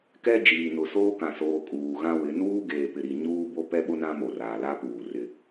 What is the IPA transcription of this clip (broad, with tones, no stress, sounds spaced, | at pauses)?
k ɛ˦ d͡ʒ iː˨ n ʊ˨ s oː˦ k ã˨ s oː˨ kʼ uː˨ ɣ ã˦ w ɪ˨˦ n uː˦ ɡ eː˨ p ɪ˨ ɾ i˨ ɲ uː˦ b o˦ p ɛ˦ ɓ ʊ˦ n ã˦ m o˨ r aː˨ l a˦ p uː˨ r ɪ˦